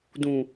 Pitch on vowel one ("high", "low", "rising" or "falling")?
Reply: low